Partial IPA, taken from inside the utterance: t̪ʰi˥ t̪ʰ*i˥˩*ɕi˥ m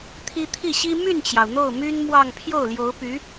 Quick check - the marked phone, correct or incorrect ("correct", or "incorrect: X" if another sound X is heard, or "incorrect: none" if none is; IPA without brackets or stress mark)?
correct